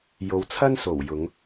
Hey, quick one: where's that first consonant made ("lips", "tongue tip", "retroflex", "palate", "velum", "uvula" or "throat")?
palate